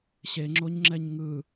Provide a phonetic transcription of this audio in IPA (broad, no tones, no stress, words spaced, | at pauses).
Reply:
ɕeŋ͡ǁoɲŋ͡ǁɛɲ ŋɯ